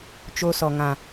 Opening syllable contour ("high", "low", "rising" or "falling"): high